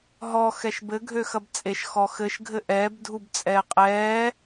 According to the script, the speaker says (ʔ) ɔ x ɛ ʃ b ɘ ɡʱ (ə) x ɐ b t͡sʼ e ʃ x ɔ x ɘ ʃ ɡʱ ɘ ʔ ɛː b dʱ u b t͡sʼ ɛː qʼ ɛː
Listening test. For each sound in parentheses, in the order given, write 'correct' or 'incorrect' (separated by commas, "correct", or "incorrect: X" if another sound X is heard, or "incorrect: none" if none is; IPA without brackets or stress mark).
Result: incorrect: ɦ, incorrect: ø